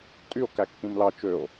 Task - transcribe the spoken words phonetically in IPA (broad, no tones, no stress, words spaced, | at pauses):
tʼyo̯ kækːĩmlɑ t͡ʃøo̯